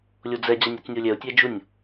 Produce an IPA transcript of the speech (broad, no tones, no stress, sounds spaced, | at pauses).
lʲ o d͡z ɛ d͡ʑ a nʲ œ t͡s nʲ o lʲ ɛ ʊ̯ tʲ ɛ d͡ʒ u nʲ